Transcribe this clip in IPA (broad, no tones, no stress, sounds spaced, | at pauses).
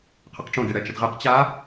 qʰ ə q ʈ͡ʂ õ d e ɽ ɛ t͡ʃ ə d ʁ e q t͡ɕ a